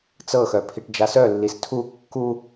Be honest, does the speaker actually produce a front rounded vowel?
yes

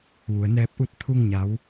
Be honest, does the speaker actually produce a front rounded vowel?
no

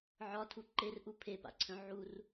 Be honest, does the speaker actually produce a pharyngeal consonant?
yes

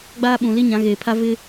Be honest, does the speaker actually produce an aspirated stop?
yes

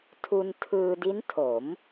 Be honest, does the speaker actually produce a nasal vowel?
no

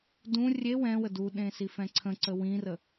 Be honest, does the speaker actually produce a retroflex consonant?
no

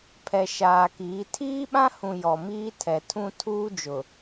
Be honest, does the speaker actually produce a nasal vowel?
yes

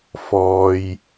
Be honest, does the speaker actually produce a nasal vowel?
no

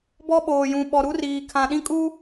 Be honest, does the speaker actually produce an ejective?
yes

